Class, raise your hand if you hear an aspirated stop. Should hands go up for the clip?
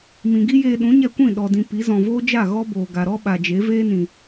no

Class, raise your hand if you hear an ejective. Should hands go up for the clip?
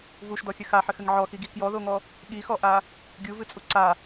yes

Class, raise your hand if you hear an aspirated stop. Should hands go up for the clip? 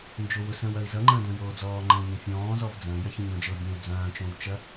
no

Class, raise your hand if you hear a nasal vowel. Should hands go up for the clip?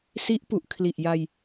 no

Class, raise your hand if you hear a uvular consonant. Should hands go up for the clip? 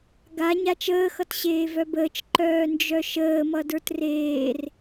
no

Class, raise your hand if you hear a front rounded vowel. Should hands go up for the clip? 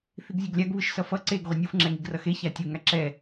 no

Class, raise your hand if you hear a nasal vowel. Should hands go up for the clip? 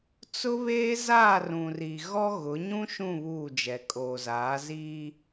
yes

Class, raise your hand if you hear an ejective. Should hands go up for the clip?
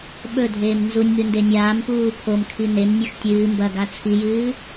no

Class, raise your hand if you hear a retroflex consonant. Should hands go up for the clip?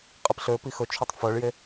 yes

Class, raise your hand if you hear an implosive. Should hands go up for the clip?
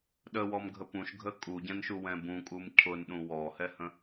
yes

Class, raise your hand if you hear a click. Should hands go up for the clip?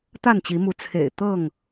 no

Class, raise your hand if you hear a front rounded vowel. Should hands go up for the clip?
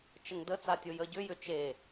yes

